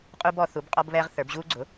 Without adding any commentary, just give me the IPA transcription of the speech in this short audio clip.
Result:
qʼu˦bɔ˩˧ θu˩˥bqʼɔ˦bβɛː˦ʁ θə˞˩˧bʑuː˦ɡ͡ǀʊ˩˥

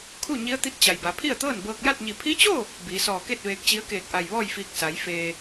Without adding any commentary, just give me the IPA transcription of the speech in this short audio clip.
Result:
kʰu˥˨ɲi˧˥ə̯t̪i˧˥t̚t͡ɕa˩j ba˩˧pʰi˥˨ə̯t̪ɤː˥˨n bɤː˧k̚ja˥˨t̚ɲi˧˩ pʰi˧˥t͡ɕo˥˨ | biː˩˧sɔː˧˩ ke˥˨t̚ ʋeː˧k̚t͡ɕi˧˥ə̯keː˧˩k̚ʔa˧˩j ʋɔː˥˨jfiː˧k̚ sa˩˧j feː˩

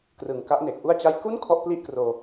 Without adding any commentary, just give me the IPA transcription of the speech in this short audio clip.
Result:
krɯ˨˩ŋka˦˥ʔne˨˩k̚ ʔu˥˩a̯t͡ɕa˥˩j ku˥˩n kʰɔ˥˩ʔpli˥˩ʔkroː˧

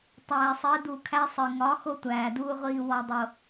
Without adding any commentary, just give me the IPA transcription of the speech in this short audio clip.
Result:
tˤæː˨sˤe˨˦du˨kʰæ˦ sˤi˨ ŋɒ˨˦ xo˦tʷæː˨duː˦ ʁʷiː˦wɒ˦dˤo˦

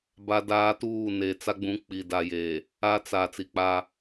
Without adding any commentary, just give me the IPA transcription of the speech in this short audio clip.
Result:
ba˦daː˦tuː˦˨ ne˨ t͡sa˦ɡ͡bũ˨˦ k͡pi˨da˨je˨ | a˦t͡sa˨ t͡si˨k͡pa˦

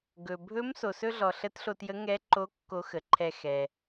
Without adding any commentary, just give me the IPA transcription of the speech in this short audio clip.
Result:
ɡɵ˩ bʱɵ˧˥m so˩sɵ˥ɮɔ˩ ɬə˧˥tɬo˧tjə˧˥ ŋɛ˧˥ǃo˧˥ kːo˧˥xə˩˧ǃʰɛ˧ xɛ˩

